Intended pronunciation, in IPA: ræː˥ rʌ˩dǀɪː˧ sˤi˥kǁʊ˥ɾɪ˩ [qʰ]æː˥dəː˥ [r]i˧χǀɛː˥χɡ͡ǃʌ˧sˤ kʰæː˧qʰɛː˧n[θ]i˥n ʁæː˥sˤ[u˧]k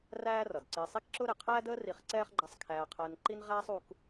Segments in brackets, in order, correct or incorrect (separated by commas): correct, correct, incorrect, correct